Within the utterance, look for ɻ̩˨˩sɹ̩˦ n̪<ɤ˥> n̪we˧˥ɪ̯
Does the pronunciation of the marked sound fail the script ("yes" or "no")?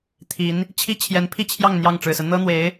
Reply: no